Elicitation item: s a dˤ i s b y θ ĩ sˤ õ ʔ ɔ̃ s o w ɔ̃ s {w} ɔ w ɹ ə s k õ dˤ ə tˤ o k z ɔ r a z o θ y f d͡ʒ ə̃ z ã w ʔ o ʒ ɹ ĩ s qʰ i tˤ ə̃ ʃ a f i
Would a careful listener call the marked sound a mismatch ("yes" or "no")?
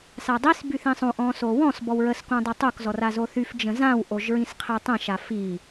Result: yes